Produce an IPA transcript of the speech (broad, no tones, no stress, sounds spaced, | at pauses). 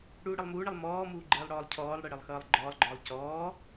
ɽ uː ɽ ə lˠ m uː ɳ ə lˠ m ɔː m uː ɡ͡ǃ ɘː lˠ ɽ ɔː lˠ cʰ ɔː lˠ ɽ ɘ ɽ ɘ lˠ x ʌː lˠ ɡ͡ǃ ɔː lˠ ɡ͡ǃ ɔː lˠ c ɔː